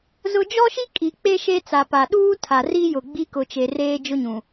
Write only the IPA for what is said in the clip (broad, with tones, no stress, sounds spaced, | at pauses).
z ʊ˦ d͡ʒ ɔ˦ ʃ i˦ kʼ i˨ k͡p e˦ ʃ e˦ t͡s a˨ p a˨ ɗ uː˦ tʰ a˨ r i˦ j ʊ˨ ɡ͡b i˦ k ʊ˨ t͡ʃ e˨ r eː˦ d͡ʒ ʊ˦ ɲ ũ˨